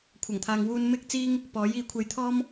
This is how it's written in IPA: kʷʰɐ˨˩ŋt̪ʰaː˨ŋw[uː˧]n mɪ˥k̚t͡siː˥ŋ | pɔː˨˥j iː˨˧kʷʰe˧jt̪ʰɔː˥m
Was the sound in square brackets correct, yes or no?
yes